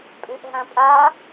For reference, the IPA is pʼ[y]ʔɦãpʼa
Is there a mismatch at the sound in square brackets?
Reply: no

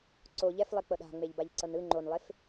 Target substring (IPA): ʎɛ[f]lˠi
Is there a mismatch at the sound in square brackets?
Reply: no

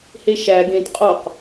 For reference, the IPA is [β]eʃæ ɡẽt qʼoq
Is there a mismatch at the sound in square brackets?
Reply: yes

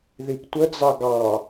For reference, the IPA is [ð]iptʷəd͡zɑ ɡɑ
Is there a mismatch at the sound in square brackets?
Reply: no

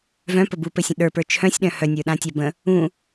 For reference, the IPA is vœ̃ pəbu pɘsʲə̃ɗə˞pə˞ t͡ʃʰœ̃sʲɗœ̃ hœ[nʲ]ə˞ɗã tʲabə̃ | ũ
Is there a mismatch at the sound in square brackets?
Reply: no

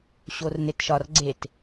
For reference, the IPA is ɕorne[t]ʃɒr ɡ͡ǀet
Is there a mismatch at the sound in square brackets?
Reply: no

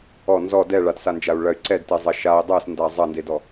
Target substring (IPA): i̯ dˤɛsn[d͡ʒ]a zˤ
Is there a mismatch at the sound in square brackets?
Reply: yes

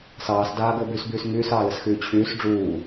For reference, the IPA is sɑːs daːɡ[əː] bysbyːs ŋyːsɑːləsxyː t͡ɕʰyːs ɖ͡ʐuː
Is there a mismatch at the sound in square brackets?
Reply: no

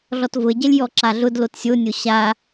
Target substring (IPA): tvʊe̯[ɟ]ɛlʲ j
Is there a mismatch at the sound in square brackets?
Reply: no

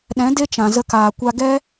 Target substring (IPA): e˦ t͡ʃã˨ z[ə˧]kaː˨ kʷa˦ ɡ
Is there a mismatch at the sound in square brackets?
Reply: no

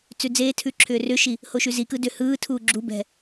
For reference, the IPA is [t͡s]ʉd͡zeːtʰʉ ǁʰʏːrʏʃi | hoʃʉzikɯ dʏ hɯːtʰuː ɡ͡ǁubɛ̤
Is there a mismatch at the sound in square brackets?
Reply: no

